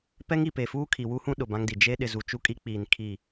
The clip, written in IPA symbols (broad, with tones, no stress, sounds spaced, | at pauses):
p ɛ˦ ŋ i˨ p e˨ f uː˦ kʰ i˨ w u˦ h ũ˦ ɗ ʊ˨ b ã˦ ŋ d i˨ d͡ʒ e˦ ɗ ɪ˨ z u˨ t͡ʃ u˦ kʼ i˦ k͡p iː˨ n kʰ i˦˨